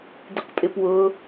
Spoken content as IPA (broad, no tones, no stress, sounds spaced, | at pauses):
d ɪ q pʼ ɪ p w ʊ